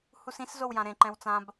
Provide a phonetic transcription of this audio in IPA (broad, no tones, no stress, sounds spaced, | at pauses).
h u s ĩ s z o w j ã ɾ ẽ ǃ ɛ̃ w t͡s ã b